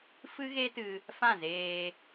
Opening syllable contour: high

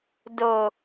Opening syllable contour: low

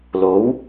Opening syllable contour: rising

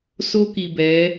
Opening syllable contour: high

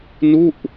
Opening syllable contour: falling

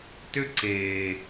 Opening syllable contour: high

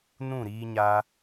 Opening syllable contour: falling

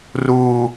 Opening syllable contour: high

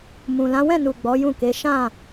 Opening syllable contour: low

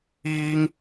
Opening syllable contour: high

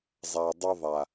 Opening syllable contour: low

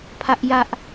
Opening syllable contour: high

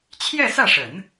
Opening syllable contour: falling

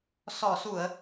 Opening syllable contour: low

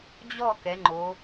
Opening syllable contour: falling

